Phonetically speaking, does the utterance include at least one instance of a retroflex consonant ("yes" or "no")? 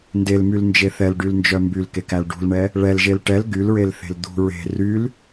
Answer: yes